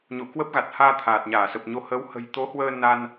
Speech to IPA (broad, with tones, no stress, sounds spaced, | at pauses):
ɲ o̰˧˨ k w ə˦˥ p̚ ɣ a˨˩ t̚ h aː˧ t̪ʰ aː˨˩ t̚ ɲ aː˧˩ s ə˨˩ p̚ ɲ o˧ h ə˨˦ w h ə̤˨˩ j t̪ o˨˦ h w əː˧ n a˧ n